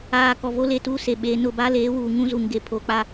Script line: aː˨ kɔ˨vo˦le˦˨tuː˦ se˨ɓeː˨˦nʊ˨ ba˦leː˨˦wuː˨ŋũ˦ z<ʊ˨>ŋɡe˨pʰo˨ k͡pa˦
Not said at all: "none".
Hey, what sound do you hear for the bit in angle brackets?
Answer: u˨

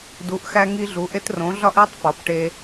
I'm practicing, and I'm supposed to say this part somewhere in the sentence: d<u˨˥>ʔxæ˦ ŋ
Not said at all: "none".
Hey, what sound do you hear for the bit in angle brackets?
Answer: u˨˥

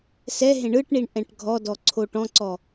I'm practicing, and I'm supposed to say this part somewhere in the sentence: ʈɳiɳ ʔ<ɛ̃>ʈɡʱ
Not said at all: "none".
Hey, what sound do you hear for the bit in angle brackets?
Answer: ɛ̃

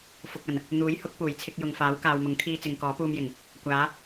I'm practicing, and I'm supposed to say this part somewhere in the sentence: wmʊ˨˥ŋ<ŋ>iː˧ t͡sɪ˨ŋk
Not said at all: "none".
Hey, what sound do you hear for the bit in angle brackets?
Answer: kʰ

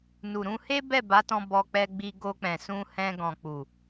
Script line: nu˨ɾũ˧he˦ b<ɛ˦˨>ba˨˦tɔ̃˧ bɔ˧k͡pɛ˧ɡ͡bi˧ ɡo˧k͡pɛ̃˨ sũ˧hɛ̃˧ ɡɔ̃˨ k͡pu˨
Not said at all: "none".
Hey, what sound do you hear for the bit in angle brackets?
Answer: ɛ˦˨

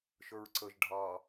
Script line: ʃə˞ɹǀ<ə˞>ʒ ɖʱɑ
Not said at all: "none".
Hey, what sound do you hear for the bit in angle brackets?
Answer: ə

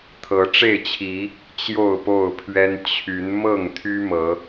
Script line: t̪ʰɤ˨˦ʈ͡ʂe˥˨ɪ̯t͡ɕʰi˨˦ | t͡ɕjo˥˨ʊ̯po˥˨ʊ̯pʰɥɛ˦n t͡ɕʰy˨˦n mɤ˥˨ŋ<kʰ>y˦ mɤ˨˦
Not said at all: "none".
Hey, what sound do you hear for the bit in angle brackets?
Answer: t̪ʰ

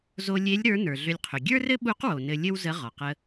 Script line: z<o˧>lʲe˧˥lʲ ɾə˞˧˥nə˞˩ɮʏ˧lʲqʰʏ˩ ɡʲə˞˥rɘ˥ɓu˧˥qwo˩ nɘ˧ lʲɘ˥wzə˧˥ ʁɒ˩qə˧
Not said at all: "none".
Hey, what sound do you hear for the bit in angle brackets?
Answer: o˧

